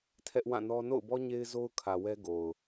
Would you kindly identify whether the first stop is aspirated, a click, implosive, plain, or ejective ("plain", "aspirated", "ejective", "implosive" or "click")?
aspirated